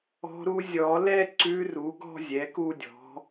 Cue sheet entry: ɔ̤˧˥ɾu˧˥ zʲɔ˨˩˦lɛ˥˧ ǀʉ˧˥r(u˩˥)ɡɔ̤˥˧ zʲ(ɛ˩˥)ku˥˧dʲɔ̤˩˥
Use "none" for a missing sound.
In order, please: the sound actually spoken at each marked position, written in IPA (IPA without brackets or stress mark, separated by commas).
u˩˥, ɛ˩˥